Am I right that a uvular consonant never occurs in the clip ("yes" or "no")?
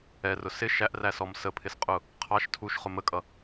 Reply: no